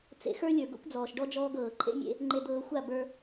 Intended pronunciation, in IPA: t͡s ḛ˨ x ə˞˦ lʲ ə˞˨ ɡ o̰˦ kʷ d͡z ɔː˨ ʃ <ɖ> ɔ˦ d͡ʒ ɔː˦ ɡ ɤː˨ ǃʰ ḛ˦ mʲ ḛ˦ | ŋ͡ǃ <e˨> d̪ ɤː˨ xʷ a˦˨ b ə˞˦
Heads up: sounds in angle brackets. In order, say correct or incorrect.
correct, correct

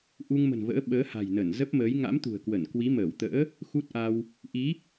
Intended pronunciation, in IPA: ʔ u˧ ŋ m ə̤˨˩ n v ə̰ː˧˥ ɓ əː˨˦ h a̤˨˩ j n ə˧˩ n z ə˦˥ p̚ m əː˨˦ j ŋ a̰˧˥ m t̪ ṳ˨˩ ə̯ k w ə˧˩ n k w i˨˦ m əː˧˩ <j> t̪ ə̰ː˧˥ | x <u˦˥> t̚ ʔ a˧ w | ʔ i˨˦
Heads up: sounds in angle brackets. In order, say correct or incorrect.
incorrect, correct

